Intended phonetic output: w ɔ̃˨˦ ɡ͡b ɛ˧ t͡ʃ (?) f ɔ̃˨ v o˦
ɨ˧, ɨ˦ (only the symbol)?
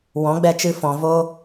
ɨ˧